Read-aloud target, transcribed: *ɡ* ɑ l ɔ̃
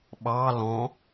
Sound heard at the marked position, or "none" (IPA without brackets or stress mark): ɓ